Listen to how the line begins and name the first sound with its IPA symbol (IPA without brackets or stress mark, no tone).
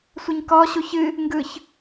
sʷ